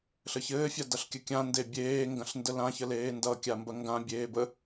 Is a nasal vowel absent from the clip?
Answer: no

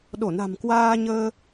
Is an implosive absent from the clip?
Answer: no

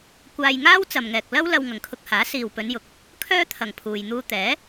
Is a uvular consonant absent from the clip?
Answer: yes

